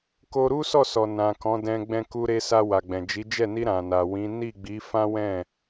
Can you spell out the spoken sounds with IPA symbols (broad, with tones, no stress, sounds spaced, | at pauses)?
k o˧ ɾ u˦ s ɔ˦˨ s ɔ˨ n ã˨ k ɔ̃˨˦ d ɛ̃˧ ɡ͡b ɛ̃˧ k u˧ ɾ e˧ s a˧ w a˨ ɡ͡b ɛ̃˨ d͡ʒ i˨˦ d͡ʒ ɛ˦˨ n i˧ ɾ ã˨ n a˨ w ĩ˨˦ n i˦˨ ɡ͡b i˨˦ f ã˦ w ɛ̃˦˨